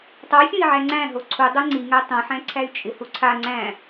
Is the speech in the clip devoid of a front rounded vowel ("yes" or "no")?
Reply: no